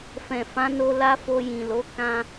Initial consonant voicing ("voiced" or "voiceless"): voiceless